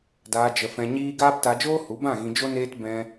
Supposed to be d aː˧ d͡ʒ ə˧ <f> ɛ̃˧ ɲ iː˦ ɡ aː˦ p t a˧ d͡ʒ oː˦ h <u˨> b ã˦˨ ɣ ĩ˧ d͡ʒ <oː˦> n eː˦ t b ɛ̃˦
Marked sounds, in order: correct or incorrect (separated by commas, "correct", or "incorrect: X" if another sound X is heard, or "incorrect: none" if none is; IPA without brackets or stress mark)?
correct, incorrect: u˨˦, incorrect: o˦